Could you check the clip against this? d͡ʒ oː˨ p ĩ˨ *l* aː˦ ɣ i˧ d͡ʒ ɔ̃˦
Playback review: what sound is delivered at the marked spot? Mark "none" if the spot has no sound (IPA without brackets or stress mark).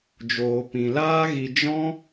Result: l